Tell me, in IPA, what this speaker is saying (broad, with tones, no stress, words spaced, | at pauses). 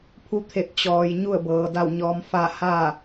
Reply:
pʰu˧˥t̪ʰe˧˩t̚ t͡ɕɔː˩j ɲu˥˨ə̯bɤː˩ da˧˩wɲɔː˩˧m fa˥˨ haː˥˨